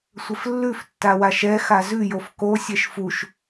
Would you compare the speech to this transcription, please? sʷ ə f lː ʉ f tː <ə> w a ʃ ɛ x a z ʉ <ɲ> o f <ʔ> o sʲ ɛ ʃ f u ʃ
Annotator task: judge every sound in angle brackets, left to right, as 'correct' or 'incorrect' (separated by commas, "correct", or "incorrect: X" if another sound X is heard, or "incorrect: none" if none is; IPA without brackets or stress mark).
incorrect: a, incorrect: j, incorrect: k